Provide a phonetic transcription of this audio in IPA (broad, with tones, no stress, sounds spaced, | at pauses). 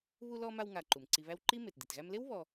β u˦ l ɔ˦ m a˦ w ŋ a˨ ǃ u˩ m ǀ i˨ β æ˦ w ǃ i˥ m e˩ t d i˩ t ɣ æ˦ m l e˥ w β ɔ˨